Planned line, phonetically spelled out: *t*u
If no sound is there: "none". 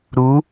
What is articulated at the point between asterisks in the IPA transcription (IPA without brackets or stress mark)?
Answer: ɾ